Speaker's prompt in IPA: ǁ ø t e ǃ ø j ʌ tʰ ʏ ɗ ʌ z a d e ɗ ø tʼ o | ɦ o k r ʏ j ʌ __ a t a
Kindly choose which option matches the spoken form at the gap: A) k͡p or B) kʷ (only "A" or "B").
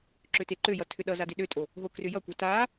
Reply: B